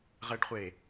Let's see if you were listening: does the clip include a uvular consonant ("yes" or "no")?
yes